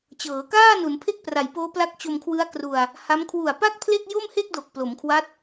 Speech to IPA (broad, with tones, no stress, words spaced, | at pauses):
t͡ɕɤː˩˦kaː˥˩ nu˩˦npʰe˥˩k̚pra˩˦jpoː˦˥ pla˦˥k̚t͡ɕo˧mkʰwɯ˦˥a̯ kru˧a̯ | ha˦˥m kʰwu˨˩a̯pa˥˩k̚pʰle˥˩k̚ jo˥˩mhe˥˩k̚do˨˩k̚ plo˩˦mkʰwa˦˥t̚